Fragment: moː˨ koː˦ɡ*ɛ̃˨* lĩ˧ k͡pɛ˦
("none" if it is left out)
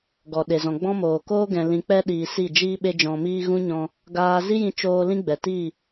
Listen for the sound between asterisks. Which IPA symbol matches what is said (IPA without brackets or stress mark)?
ɛ̃˨